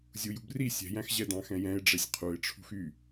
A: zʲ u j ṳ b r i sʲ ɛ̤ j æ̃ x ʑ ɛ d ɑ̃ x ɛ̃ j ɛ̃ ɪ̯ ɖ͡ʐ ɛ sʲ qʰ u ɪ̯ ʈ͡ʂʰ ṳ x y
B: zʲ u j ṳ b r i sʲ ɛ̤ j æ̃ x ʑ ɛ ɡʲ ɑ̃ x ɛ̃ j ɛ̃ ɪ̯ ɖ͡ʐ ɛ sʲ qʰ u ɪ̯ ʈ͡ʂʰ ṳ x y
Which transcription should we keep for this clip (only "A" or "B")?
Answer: A